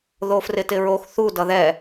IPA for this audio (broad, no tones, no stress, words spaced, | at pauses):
ðofrɪtɪɹox θu dʌðɛ